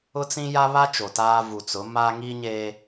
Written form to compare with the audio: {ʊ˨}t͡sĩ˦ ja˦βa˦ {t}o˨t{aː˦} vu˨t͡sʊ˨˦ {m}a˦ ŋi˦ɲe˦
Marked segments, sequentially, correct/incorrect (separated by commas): incorrect, incorrect, correct, correct